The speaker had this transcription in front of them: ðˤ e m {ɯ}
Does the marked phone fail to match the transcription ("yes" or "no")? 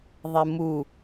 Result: yes